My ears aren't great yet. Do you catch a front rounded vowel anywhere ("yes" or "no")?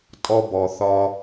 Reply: no